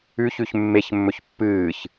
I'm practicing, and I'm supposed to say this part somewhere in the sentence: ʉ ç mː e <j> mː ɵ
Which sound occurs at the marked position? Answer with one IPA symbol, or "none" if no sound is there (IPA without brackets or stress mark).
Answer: ç